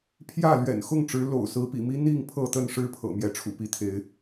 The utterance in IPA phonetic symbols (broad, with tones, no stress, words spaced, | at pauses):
pʰjä˥˨ lɥɛ̰˨˩nxʊ˥˨ŋʈ͡ʂɻ̩˨˦ lo̰˨˩ʊ̯ sɹ̩˨˦pḭ˨˩mi˦n̪i˥˨ŋ pʰɤ˥˨t̪ə˥˨n ʂɻ̩˦pʰɤ̰˨˩ mjɛ˨˦ʈ͡ʂʰṵ˨˩ pi˨˦t̪ʰe˨˦ɪ̯